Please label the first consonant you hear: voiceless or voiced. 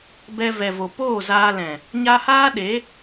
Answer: voiced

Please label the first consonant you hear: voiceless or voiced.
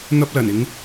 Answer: voiced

